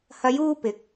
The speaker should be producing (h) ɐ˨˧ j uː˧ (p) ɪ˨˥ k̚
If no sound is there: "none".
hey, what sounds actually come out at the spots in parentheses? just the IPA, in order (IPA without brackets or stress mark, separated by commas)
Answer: h, p